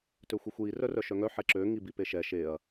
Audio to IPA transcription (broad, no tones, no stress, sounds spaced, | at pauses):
t ø xʷ i xʷ j i r œ r œ ʃ œ ŋ œ ħ ɛ ǁ ø ŋ i b i p e ʃ ɛ ʃ e ɐ̯